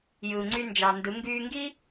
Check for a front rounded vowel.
present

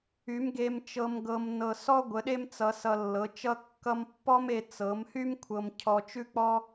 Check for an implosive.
present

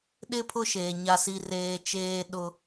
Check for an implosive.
present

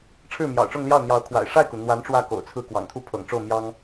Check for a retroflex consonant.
present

